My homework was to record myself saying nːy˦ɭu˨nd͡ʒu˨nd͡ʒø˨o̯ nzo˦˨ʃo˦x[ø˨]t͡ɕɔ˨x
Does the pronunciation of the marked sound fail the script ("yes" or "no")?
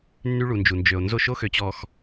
no